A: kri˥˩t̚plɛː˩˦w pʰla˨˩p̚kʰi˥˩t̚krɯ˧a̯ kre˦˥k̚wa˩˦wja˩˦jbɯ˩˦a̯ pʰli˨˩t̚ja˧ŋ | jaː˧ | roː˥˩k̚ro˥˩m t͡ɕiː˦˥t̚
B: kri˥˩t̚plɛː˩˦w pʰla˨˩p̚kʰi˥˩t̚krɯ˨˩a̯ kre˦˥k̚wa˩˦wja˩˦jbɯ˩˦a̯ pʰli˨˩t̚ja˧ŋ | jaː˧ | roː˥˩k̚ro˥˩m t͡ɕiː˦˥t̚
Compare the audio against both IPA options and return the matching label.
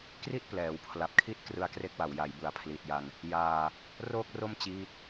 A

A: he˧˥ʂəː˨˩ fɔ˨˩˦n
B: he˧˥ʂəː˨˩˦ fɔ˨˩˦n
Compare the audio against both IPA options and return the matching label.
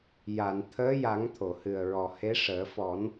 B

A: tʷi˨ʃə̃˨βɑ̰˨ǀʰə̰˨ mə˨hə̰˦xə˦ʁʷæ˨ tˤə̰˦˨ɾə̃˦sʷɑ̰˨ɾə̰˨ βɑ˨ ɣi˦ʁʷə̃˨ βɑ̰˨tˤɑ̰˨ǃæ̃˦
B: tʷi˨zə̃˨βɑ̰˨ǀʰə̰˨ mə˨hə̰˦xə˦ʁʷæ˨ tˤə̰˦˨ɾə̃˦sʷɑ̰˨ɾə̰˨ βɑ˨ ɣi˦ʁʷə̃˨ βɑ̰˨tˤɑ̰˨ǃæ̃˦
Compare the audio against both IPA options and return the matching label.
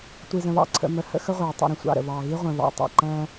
B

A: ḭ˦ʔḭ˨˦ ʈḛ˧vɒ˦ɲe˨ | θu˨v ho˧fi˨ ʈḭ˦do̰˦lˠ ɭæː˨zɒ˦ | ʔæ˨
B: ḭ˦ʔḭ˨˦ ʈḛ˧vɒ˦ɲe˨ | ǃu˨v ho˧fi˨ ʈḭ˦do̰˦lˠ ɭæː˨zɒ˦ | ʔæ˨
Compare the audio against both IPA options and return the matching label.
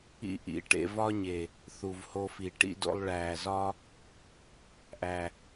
A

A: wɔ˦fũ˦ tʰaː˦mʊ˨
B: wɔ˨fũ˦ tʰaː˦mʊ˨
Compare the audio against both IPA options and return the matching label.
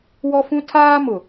A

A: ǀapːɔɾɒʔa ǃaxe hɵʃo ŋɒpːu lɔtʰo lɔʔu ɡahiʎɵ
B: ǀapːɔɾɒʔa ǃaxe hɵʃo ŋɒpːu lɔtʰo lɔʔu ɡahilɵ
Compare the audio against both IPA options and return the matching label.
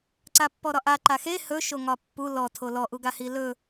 B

